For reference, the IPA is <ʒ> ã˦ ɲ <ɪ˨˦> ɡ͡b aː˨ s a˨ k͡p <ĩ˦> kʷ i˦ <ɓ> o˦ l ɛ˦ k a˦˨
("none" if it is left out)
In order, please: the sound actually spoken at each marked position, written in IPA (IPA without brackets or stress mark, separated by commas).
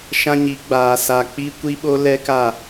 ʃ, i˨˦, i˦, ɓ